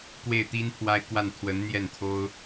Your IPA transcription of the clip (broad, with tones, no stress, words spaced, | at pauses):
kwe˥˩ɪ̯t̪i˥npʰwa˥ɪ̯kwa˥˩n t̪ʰwə˧˥nn̪jɛ˥˩n t̪ʰo˥ʊ̯